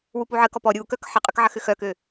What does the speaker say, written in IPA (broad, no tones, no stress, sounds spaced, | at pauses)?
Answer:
w u p u ʕ ə k ɔ p ɔ ɾʲ u k œ k ħ ə qʼ ʏ k ʕ ɐ x ʏ x œ k ø